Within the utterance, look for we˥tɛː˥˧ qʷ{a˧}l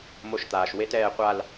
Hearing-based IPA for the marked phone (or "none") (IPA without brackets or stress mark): a˥˧